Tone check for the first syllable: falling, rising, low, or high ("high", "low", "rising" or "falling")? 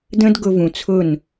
high